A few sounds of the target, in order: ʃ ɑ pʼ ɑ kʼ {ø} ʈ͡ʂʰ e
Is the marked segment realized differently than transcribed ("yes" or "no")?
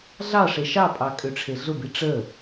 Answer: no